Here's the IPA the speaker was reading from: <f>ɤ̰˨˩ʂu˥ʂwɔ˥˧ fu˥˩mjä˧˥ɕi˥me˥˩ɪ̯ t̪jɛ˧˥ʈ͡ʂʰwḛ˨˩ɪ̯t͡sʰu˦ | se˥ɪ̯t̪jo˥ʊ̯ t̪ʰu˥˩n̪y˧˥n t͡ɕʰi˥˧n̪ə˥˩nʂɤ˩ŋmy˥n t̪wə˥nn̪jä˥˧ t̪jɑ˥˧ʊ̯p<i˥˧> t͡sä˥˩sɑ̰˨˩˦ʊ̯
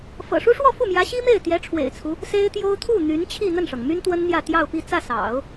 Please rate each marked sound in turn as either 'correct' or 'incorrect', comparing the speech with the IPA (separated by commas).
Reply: correct, correct